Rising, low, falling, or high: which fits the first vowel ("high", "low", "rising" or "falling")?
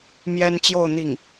high